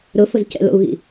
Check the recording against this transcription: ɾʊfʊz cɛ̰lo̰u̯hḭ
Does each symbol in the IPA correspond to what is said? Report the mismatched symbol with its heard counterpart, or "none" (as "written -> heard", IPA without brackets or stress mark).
h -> ɣ